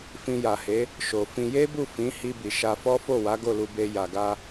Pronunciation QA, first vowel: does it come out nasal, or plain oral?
nasal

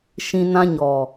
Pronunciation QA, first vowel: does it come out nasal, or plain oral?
nasal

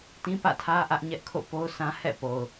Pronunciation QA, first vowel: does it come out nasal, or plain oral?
nasal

